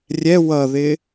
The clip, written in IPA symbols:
rʲ ɛ w ʌ ð ɪ

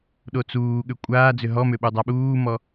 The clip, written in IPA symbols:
ɗ o t͡s uː ɠ ʏ kʷʼ aː d͡z ʏ ɦ ɔ m ʏ ɓ u dˤ a ɓ uː m ɔ

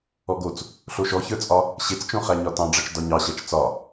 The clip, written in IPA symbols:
ɔ ɡ o t͡s | ɬ o ʃ ɔ ç ə˞ t͡sʼ ɒ | ɕ e t͡s t͡ʃ õ χ æ ɲ ɒ t ɑ̃ ɖ͡ʐ ɑ t͡ʃ d ɒ ɲ ɑ ɕ æ t͡ʃ t͡s ɒ

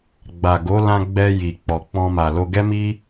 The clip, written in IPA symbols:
ɡ͡b a˨ ɡ o˨˦ l ã˧ ɡ͡b ɛ˧ j i˨ k͡p ɔ˨ k͡p ɔ̃˧ m a˨ l o˧ ɡ ɛ˦ m i˦

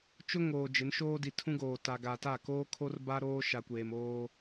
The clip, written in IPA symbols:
t͡ʃ ʊ˦ ŋ oː˨ d͡ʒ ɪ˨˦ n ʃ oː˦ d i˨ tʰ ũ˦ ɡ oː˨ t a˨ ɡ a˨ t a˦˨ k oː˦ kʰ o˦ r b a˦ ɾ oː˦ ʃ a˨ kʷ eː˨ m oː˦

